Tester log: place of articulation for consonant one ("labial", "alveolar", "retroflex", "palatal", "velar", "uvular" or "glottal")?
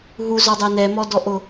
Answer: glottal